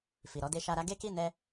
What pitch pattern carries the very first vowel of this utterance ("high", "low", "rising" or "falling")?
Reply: low